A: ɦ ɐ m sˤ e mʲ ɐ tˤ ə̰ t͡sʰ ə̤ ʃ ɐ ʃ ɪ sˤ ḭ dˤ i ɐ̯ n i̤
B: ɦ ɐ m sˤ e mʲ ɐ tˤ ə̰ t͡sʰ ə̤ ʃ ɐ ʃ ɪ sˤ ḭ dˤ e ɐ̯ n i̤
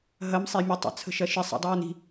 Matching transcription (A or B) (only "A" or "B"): B